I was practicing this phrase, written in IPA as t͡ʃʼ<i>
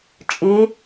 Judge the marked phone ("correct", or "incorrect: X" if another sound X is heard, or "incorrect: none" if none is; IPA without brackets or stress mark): correct